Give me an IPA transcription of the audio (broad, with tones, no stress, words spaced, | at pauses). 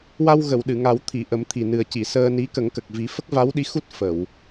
wa˧wɣə˨˩˨w ɗɨ˨˩˨ŋa˨˩˦wt̪ʰi˨˩˨ʔə˨˩˦m t̪ʰi˨˩nɨ˨˩ə̯ci˨˩˨ səː˧ni˧˥ kə˨˩˦ŋkə˨˩k̚ vi˨˩˦ fə˦˥k̚va˧˥wɗi˧˥ xu˦˥t̚ fə˨˩˨w